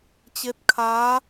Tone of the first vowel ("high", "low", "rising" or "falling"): rising